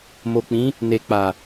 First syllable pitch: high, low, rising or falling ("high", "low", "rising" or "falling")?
low